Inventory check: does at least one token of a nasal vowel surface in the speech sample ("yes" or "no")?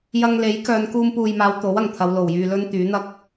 no